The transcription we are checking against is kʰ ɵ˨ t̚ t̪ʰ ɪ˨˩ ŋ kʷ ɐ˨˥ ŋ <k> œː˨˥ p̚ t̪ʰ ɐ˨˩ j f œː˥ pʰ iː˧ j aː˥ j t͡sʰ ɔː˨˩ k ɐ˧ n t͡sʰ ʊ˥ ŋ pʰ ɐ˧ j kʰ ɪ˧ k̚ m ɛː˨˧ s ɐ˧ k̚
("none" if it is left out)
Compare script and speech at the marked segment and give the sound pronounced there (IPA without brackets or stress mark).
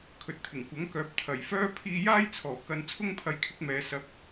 k